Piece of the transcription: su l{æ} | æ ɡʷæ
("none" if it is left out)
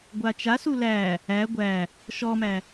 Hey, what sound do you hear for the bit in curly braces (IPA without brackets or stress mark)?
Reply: æ